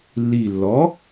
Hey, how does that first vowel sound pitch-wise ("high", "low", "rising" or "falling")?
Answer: low